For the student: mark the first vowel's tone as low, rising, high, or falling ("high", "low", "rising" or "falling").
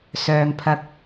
low